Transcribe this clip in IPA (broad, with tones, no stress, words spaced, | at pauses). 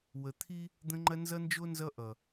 wə˨t̪ʰi˦ | d̪ə̃˦ŋ͡ǃɐ˦ nzʌ˦nd͡ʒo˦ nzʌ˦ʔʌ˨